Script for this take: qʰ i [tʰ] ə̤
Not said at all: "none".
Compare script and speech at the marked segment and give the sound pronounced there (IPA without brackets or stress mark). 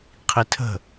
tʰ